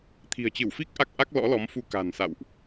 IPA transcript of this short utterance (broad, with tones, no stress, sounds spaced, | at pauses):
t̪ʰ i̤˨˩ ə̯ t͡ɕ ɨ˧˩ w f i˦˥ k̚ ʔ a˦˥ k̚ ʔ a˦˥ k̚ l ɔ̰˧˥ l ɔ˨˦ m f u˧ k a̤˨˩ n s a̰˧˨ w ʔ